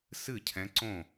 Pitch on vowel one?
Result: falling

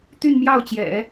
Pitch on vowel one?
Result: falling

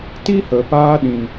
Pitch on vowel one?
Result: high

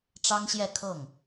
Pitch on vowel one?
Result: high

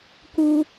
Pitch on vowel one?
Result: high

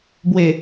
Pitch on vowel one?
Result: low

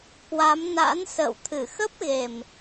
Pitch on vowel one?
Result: rising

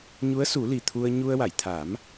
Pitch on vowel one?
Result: rising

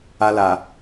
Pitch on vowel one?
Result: high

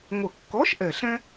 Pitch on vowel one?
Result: low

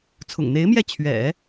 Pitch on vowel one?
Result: low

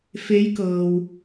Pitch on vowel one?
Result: rising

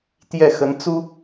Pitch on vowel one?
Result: falling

